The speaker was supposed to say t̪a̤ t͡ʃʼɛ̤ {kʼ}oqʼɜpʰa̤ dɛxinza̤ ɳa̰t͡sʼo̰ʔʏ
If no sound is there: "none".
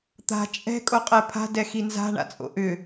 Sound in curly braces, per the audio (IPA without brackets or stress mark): kʼ